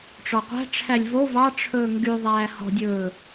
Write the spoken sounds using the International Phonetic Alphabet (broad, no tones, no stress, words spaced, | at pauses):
ʈ͡ʂɔqʷæ̤ʈ͡ʂʰælʲ vo vɑ ʈ͡ʂʰɵːŋɡyðˤæː hɔ̤dʲɵː